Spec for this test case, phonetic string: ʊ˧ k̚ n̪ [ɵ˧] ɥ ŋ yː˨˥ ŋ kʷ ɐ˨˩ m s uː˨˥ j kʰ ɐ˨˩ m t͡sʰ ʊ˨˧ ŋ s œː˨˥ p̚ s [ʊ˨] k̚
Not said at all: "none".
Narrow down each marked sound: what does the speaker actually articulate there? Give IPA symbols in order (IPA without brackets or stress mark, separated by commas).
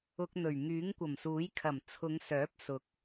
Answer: ɵ˨˩, ʊ˨˥